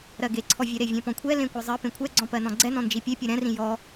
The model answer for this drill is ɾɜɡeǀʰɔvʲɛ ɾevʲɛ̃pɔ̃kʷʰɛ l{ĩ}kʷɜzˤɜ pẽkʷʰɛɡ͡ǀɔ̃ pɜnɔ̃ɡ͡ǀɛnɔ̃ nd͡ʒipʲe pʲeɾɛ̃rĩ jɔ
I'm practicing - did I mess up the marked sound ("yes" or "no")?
yes